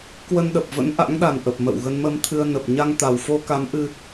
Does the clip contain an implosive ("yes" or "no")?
yes